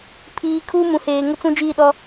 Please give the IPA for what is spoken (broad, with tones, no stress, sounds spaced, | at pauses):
pʰ iː˨ kʰ uː˦ m ũ˨ h eː˨ ŋ ʊ˦ t͡s ũ˦ d͡ʒ iː˦˨ ɗ ɔ˦